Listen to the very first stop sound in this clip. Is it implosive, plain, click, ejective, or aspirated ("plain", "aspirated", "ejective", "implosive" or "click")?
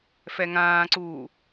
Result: click